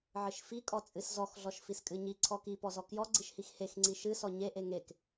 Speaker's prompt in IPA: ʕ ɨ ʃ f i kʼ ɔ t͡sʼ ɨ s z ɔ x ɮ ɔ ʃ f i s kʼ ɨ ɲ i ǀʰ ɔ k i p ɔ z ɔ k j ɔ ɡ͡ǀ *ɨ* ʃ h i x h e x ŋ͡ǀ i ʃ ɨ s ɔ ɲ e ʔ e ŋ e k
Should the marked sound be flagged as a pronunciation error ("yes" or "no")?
yes